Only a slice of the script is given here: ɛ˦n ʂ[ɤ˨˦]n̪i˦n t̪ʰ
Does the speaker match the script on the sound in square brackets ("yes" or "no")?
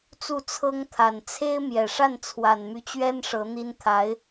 yes